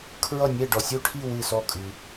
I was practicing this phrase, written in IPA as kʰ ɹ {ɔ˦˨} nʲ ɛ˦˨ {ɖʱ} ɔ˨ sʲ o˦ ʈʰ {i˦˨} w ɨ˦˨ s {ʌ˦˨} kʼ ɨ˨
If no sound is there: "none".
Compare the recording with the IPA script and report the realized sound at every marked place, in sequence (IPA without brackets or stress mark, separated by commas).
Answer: ʌ˦˨, ɖ, i˦˨, ɔ˦˨